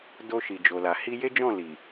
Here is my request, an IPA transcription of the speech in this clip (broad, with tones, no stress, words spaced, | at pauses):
do˧ ʃi˨d͡ʒo˨la˨ hi˧je˦d͡ʒɔ̃˦˨ li˨